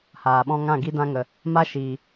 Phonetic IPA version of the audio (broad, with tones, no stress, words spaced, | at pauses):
haː˨ɓɔ̃˦ ŋã˦˨ɡi˦ dã˦ŋə˨ | ma˦ ʃiː˨